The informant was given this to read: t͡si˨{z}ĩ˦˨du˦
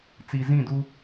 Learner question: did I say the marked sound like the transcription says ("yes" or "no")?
yes